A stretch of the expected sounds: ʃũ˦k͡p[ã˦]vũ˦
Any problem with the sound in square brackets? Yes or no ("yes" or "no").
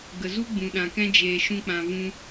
yes